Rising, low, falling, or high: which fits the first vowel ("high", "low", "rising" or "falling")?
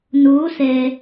rising